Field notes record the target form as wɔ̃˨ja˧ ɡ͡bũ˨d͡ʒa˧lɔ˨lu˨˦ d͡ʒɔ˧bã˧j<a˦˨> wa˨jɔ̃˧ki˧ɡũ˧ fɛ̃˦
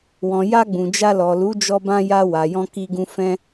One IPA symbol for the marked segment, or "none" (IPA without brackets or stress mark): a˧